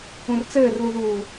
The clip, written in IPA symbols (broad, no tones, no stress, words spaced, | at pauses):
ũrt͡sɘːrluðuː